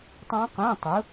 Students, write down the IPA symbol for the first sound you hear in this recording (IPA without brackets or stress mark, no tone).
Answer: tˤ